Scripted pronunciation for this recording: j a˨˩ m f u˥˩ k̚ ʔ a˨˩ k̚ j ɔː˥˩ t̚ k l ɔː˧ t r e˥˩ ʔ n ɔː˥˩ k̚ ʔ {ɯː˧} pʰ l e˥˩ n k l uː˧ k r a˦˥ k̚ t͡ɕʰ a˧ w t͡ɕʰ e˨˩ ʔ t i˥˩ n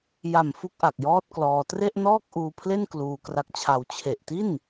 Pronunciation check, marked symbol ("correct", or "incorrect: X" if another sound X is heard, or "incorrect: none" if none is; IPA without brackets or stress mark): incorrect: uː˧